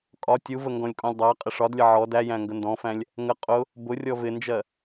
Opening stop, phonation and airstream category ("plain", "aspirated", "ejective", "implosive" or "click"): ejective